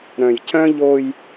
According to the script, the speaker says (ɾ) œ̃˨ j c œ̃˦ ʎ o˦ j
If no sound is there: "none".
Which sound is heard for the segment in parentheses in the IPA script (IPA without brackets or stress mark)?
ɾ